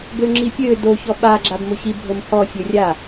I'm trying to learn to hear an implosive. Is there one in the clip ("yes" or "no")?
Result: yes